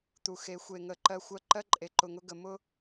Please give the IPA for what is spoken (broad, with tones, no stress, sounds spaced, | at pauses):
t̪ u˨ x e˨˦ xʷ e˨ ŋ ə˨ ǃ ɜ˧ xʷ ɜ˧ ǃ ɜ˦ ǃʼ e˨ ǃ ʊ˨ ŋ ʊ˧ ɡ ə˨ m ʊ˦